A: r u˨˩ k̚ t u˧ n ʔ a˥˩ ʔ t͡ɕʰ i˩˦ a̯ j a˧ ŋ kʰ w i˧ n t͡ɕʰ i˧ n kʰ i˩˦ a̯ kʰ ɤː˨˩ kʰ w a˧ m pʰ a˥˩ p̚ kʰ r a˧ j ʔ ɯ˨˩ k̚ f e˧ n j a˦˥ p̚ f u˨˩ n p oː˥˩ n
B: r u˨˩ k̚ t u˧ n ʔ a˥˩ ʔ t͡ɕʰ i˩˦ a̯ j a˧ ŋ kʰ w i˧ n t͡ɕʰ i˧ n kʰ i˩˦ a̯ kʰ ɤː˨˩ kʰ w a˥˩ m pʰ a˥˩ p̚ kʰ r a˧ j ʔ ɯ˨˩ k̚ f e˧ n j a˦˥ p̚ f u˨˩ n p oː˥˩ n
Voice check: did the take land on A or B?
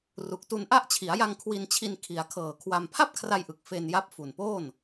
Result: A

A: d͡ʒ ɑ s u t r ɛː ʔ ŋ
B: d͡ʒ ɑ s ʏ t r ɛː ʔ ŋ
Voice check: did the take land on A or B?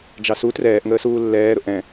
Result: A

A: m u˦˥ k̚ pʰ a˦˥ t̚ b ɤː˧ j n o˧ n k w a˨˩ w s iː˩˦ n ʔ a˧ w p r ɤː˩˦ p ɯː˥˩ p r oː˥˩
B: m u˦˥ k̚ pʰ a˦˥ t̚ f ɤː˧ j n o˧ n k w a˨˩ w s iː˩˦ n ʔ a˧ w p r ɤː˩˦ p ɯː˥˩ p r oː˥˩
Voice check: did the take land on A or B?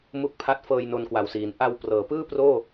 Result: B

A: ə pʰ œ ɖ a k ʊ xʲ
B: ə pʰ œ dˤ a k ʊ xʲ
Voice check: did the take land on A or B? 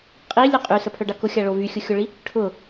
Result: A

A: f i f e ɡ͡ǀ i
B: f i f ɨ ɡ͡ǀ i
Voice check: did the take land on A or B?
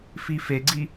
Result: A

